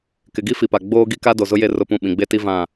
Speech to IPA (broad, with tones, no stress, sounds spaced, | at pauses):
k ɪ˨ ɡ i˦ f i˨ p a˨ ɡ͡b oː˦ ɡ i˦ k a˦ d o˨ z ʊ˦ j e˦˨ r ʊ˦˨ p ũ˦˨ ɓ ĩ˨ ɡ͡b e˦ t i˦ v ã˦˨